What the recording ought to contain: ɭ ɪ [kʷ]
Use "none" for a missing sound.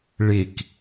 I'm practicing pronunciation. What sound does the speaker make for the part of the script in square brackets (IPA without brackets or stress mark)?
k